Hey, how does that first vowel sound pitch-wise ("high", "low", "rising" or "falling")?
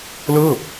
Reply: falling